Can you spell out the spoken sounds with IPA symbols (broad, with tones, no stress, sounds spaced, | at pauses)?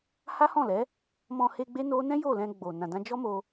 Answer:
h a˦ h ɔ̃˦˨ l ɛ˨˦ | m ɔ̃˧ h e˧ ɡ͡b e˦ n o˦ n ɛ̃˦ j o˦˨ l ɛ̃˧ ɡ͡b o˨ n ã˨ d ã˧ d͡ʒ ɔ˦ m o˧